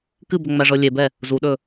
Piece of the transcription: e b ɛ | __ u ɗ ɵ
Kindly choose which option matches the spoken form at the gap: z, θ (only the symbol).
z